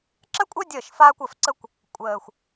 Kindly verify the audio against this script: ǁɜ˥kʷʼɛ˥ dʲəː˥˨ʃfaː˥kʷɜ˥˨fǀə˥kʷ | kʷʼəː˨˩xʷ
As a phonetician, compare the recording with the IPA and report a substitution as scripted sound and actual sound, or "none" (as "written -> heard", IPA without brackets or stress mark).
ɛ˥ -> ɜ˥